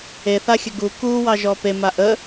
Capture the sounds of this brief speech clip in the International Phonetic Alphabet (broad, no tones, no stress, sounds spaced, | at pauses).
e θ a xʲ ə ɡ u k u w ɑ ʒ ɔ p e m a ʔ ə